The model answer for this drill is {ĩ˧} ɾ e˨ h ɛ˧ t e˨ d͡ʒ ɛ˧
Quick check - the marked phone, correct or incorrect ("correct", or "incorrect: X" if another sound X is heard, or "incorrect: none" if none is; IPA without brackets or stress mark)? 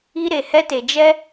incorrect: i˧